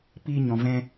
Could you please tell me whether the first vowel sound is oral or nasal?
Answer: oral